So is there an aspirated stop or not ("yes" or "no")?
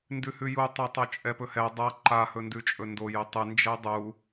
no